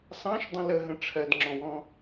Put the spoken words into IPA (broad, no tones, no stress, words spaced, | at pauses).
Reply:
sɑ̃ʃdˤə̃ ləɦə̃ ʈ͡ʂʰɜdŋ͡ǁɔ̃wɔ̃